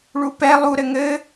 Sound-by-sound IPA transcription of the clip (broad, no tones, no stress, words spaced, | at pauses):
ɭupɛ lˠu ɾɘŋɘ